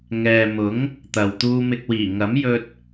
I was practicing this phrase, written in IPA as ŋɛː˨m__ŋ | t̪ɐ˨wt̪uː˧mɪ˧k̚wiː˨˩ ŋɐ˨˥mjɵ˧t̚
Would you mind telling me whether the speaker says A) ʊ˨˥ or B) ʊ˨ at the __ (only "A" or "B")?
A